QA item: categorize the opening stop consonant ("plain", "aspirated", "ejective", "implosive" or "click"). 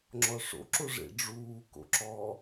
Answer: click